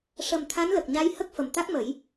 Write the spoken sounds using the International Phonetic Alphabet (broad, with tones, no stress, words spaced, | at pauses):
ʂə˨˩m t̪ʰa˧˥nlə˨˩k̚ɲa˧˥j hə˦˥k̚fə˨˩mt̪a˦˥k̚mə˨˩˦j